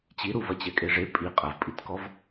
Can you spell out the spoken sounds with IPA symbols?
t͡ɕ i ɾ u v ɐ t͡ɕ ɛ kʼ e ʐ e pʼ i qʼ ɐ v pʼ i t k ɔ v

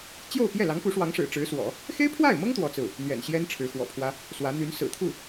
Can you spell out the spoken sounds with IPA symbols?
t͡ɕ j o˥˧ ʊ̯ p j ɛ˥˩ l ɑ˧˥ ŋ p u˧˥ ʂ w ɑ˧˥ ŋ ʂ ɻ̩˨˩ ʈ͡ʂ ɻ̩˧˥ s w ɔ̰˨˩˦ | x e˥ ɪ̯ pʰ w a˥˩ ɪ̯ m ɤ˥ ŋ t̪ w ɔ˥ t͡s ɹ̩˥˩ | n̪ ɥ ɛ̰˨˩ n ɕ j ɛ˥ n ʈ͡ʂʰ ɻ̩˧˥ x w ɔ̰˨˩ pʰ w ä˥ | s w ä˧˥ n̪ y˧˥ n s ɹ̩˨˩ t̪ʰ u˥˩

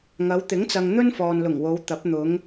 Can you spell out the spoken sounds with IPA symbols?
ŋ ɐ˨˧ w t̪ ɪ˨˥ ŋ t͡s ɐ˨ ŋ n̪ ɵ˥ n f ɔː˨ n l ʊ˨˩ ŋ w o˨˧ w t̪ ɐ˨˥ p̚ n̪ ʊ˨˧ ŋ

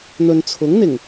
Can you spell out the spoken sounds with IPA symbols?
n̪ ɵ˨ n t͡sʰ ʊ˨˥ ŋ n̪ ɪ˨˩ ŋ

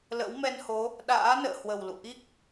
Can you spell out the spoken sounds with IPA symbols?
l ə̰˧˥ w m ɛ˧ n h o˨˦ | ɗ a̰ː˧˥ n ə̰ː˧˨ h w ə˨˩ w l ṵ˧˨ ʔ i˦˥ k̚

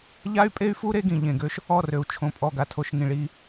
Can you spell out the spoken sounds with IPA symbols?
ʎ a˦ y̯ pʼ e˦ y̯ f u˦ ɾ e˦ ɡ ĩ˨ ʎ ẽ˨ ɡ ø˦ ʃ | ɔ˦˨ r ø˨ u̯ t͡ʃʰ õ˨ pʼ ɔ˨ ɡ a˨ tʰ o˨ ʃ ŋ ĩ˨ ɭ i˦

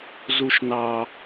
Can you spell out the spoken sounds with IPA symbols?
z u ʃ n ɑ

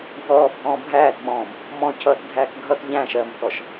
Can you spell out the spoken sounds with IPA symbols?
ɡʱ ɔː bʱ ɔ̃ː bʱ æː t ɓ ɔ̃ː m | m ɔ̃ cʰ ʌː t dʱ æː k ɡʱ ʌ t ʎ æ̃ ʃ ɜ m t ɔ ʃ

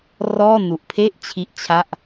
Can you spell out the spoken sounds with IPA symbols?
r ɔː˥˩ n u˨˩ ʔ pʰ e˥˩ ʔ t͡ɕʰ i˥˩ ʔ t͡ɕʰ a˥˩ ʔ

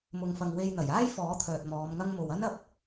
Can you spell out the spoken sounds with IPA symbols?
m ʊ˨ ŋ f ɐ˨ ŋ w e˧ j n̪ ɐ˨˩ j aː˥ j f ɔː˨˥ t̪ʰ œː˨ t̚ m ɔː˨˧ m ŋ ɐ˥ ŋ m o˨ w ɐ˥ n ɐ˧ p̚

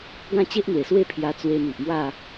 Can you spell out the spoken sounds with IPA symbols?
ɡ ã˥˧ t͡ɕ e˦ ʔ n̪ w e˨˩ s w e˥˧ pʰ j a˧ t͡s w e˧ m i˨ ʔ m w a˥˧

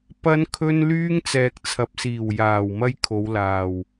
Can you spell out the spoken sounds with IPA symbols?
p ɐ˥ n kʰ ɵ˥ n l yː˥ ŋ t͡s ɛː˨ k̚ t͡sʰ ɐ˨ p̚ s iː˨˩ w j aː˨˩ w m ɐ˥ j kʰ o˨˧ w l aː˨˩ w

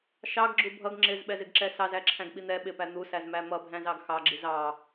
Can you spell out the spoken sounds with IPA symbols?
ʃ ɑ ɡ ɡ͡ǁ u bʱ ʌ ɡ ŋ͡ǁ ɪ z ɓ ɛ z ɪ ɡ ǁ ɛ s ɑ z æ ǁʰ æ̃ ɡ ɓ i n̪ ɛ ɓ ɪ p æ n̪ u s æ z m æ m ʌ bʱ æ̃ z ɑ ɡ x ɑ ɡ͡ǁ i z ɑ

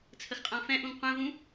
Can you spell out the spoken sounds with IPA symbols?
t͡sʰ ə x qʼ ã f ɛ̃ ʔ ũ ŋ qʷ ɛ̃ v ũ

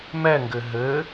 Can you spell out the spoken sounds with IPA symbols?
m ɛ ŋ ɡ ɘ ɦ ɘ

